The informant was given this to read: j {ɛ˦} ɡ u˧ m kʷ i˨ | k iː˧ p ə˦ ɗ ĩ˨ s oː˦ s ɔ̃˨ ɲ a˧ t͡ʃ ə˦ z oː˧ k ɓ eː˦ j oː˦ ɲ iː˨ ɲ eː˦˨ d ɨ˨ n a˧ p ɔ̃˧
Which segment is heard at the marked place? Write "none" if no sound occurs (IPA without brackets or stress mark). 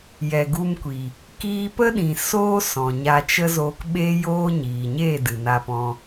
ɛ˨